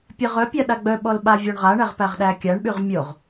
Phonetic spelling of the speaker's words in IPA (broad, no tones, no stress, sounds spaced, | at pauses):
pʲ ɜ ʁ œ pʲ a ɗ a ɡ͡b œ ɓ ɔ l ɓ a vʲ ɔ ɳ ʁ a ɳ æ ʁ p æ ʁ ɗ æ kʲ a ɳ ɓ y ʁ mʲ o ʁ